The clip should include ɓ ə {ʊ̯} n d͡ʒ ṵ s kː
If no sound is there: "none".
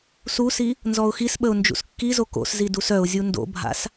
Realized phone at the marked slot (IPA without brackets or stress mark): ʊ̯